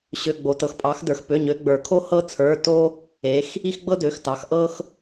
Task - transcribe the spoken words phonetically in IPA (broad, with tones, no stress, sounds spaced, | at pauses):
ɕ ø˩˧˩ ɡ͡b o˩ t ɤ˩ x pʼ ɑ˩˧ x d ə˞˩ x p ø˩˧˩ ɲ ø˩˧ ɡ͡b ə˞˩ kʰ o˦ h ɤ˦ t͡sʰ ə˞˩˧˩ t o˦ | e˩˧ x | i˦ x ɡ͡b ɤ˦ d ø˩˧˩ x t ɑ˩˧ x ʔ ɤ˦ x